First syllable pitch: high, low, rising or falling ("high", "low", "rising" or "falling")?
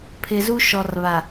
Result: low